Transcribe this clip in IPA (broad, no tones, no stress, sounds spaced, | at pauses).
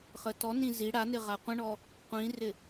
χ ə t ɔ n ĩ z i ɽ a n ɪ ʁ a qʷ ə̃ ɳ ɔ | qʷ ĩ r ɪ